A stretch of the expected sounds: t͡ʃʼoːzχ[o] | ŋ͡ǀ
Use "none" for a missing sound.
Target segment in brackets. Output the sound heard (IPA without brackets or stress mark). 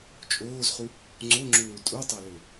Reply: u